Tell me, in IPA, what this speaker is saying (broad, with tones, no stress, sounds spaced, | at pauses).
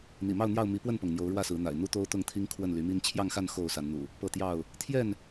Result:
n̪ ḭ˨˩ m ɑ˥˨ ʊ̯ n̪ j ɑ˥˨ ʊ̯ m i˨˦ p w ə˥˨ n p ɤ˩ ŋ n̪ j o˨˦ ʊ̯ ɻ w ä˥˨ s ɹ̩˨˦ n̪ a̰˨˩ ɪ̯ n̪ u˦ t̪ o˦ ʊ̯ t̪ ʊ˥˨ ŋ t̪ʰ i˦ ŋ kʰ w ə˥˨ n l y˨˦ m i˦ n t͡ɕʰ j ɑ˥˨ ŋ x a˥˨ n x o˥˨ ʊ̯ s a˨˦ n n̪ ṵ˨˩ | p ɤ˥˨ t̪ j ɑ˥˨ ʊ̯ | t̪ʰ j ɛ˥˨ n